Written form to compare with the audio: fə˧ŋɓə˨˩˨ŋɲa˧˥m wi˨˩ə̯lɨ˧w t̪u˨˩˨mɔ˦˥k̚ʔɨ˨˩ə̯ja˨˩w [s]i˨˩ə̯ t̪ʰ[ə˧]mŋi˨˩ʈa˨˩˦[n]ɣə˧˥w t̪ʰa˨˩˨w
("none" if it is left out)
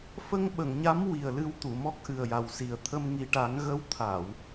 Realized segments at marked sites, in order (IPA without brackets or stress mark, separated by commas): s, ə˧, ŋ